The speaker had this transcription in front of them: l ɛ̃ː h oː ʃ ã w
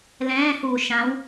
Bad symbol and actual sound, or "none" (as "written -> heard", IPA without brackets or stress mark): oː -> uː